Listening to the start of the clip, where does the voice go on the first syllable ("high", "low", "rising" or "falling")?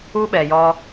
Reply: high